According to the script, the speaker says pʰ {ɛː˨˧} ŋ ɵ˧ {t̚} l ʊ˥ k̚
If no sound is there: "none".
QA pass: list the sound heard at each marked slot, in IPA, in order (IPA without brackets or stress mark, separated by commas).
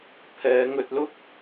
ɛː˨˧, t̚